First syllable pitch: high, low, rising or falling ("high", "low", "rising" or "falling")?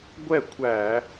falling